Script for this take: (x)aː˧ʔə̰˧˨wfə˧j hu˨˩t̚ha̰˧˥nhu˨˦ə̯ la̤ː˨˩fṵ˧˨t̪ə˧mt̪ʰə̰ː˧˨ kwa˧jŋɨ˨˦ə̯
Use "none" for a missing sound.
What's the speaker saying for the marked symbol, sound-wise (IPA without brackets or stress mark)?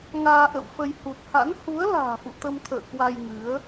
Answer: ŋ